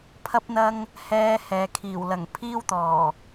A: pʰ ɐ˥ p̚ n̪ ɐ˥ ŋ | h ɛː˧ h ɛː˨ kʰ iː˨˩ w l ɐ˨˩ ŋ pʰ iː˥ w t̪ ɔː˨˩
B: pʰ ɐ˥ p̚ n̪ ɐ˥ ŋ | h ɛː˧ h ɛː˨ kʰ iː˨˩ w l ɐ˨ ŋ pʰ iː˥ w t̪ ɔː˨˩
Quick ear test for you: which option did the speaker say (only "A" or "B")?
A